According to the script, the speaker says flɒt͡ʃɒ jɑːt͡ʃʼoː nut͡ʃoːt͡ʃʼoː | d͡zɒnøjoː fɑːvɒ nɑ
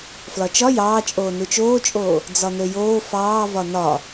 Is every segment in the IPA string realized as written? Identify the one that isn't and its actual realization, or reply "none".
ɑ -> ɒ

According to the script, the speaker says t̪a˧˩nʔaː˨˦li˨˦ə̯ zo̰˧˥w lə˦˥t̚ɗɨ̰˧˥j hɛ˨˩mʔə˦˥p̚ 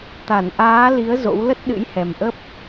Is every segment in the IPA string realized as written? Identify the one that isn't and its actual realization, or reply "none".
none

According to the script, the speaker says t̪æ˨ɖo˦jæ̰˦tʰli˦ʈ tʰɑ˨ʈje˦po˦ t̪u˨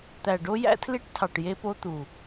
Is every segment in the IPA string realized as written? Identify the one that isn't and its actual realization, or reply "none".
none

